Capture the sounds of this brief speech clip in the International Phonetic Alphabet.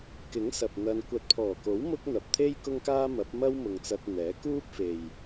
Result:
k ɪ˨˥ ŋ s ɐ˨ p̚ n̪ ɐ˧ n kʷ ɐ˨ t̚ pʰ ɔː˨˩ k o˨˥ w m ʊ˥ k̚ n̪ ɐ˨ p̚ t̪ʰ e˥ j k ʊ˥ ŋ k aː˥ m ɐ˨˥ p̚ m ɐ˥ w m ʊ˨ ŋ t͡s ɐ˧ t̚ n̪ ɛː˨˥ k uː˥ p̚ f e˨ j

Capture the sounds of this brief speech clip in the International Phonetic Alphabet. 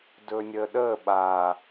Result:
d ɵː nʲ əː ɗ əː ɓ a

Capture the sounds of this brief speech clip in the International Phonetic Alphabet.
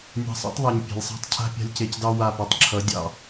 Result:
nʲ a̤˧ sˤ ɑ̰˦ tˤ ðˤ a˨ ɲ pʲ e̤˨ lʲ sˤ a̤˦ tˤ cʰ a̤˦ pʲ a̤˧ lʲ c e˨ c d ɑ˧ w a˦˨ p ɛ˧ tˤ ǁʰ ʌ˨˦ dʲ ɑ̰˧

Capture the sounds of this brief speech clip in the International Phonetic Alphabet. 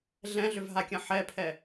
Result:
ɮ ɛ̃ ɮ ʏ v ɦ a kʲ ɐ̃ ħ ɛ pʰ ɛ

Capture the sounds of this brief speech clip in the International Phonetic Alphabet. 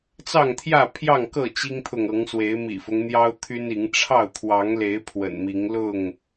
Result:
t͡s ɑ˥˨ ŋ t̪ʰ j ä˥˨ pʰ j ɑ˥˨ ŋ k ɤ˥˨ t͡ɕ i˦ ŋ t̪ʰ ʊ˨ ŋ ɤ˨˦ ŋ s w e˨˦ ɪ̯ m ḭ˨˩ f ʊ˦ ŋ n̪ j ɑ˦ ʊ̯ t̪ʰ y˦ n i˨˦ ŋ ʈ͡ʂʰ ɑ˥˨ ʊ̯ t̪ʰ w ɑ˨˦ ŋ l e˨˦ ɪ̯ pʰ w ə̰˨˩ n m i˨˦ ŋ l ʊ˥˨ ŋ

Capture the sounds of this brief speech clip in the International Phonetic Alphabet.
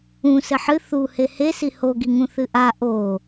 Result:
ũ s ɘ ħ ɨ θ u h e h e s i h o ɡ i ŋ ũ θ ɨ ʔ a ʔ o

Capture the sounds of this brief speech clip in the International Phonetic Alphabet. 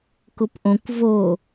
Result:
k ʊ p ʔ õ kʷ v o

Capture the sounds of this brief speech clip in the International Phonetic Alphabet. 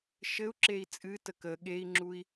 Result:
ʃ ɘ u̯ ǁ e i̯ t͡sʼ ɨ t ə k ə ɠ e i̯ ŋ͡ǁ u i̯

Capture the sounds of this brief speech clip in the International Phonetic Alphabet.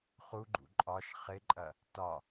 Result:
χ u ɡ͡ǃ ṵ ǃʼ ɒ ʃ χ ɪ ǃʼ ɐ | t ɒ

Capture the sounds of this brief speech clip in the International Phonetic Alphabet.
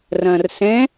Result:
r ɐ̃ː r s ɛ̃

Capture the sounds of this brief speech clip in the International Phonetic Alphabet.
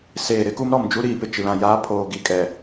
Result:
s eː˨ ɾ ɪ˦ k u˦ m ɾ ɔ˨ m d͡ʒ u˦ ɾ iː˨ p ɪ˨ t͡ʃ i˨ l ã˨ j aː˦ pʰ oː˨ ɡ i˨ kʼ ɛ˨

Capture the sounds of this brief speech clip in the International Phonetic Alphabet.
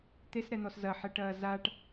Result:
t̪ e s ɾ ɛ n̪ ɔ s z ɐ ħ ɛ ʈ ɐː z a ʈ

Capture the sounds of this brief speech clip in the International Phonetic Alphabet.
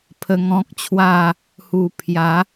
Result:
pʰ ə˧ ŋ ɔ̃˦ k̚ t͡ɕʰ w a˥˧ | h u˨˩ pʰ j a˨˦

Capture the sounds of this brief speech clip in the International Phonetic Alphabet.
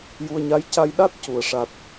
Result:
j u˧ ə̯ ɲ a˧˥ j c a˧ j ɗ a˦˥ t̚ c u˨˩ ə̯ ʂ a˨˩ t̚

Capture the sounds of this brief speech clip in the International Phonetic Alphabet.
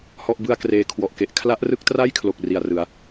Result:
h ɔ˥˩ ʔ b ɯ˥˩ a̯ k r eː˧ kʰ w ɔ˨˩ ʔ k e˦˥ ʔ kʰ l a˦˥ ʔ r ɯ˦˥ k̚ t r a˥˩ j kʰ l o˨˩ k̚ r i˨˩ a̯ r ɯ˩˦ a̯

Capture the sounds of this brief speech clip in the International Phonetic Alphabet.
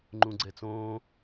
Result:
ŋ͡ǃ ũ ɡ͡ǀ ɛ t͡s õː

